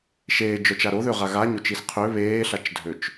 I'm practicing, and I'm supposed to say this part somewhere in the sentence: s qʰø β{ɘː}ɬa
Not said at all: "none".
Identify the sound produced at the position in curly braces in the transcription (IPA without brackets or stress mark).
eː